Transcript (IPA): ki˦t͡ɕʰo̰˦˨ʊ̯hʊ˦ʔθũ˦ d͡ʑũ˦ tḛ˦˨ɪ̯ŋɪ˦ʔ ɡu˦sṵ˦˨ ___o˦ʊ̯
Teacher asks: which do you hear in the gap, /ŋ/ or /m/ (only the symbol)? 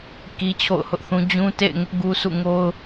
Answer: ŋ